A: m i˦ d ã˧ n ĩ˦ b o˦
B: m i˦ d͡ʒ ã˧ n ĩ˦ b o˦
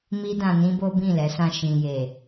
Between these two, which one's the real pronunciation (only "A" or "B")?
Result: A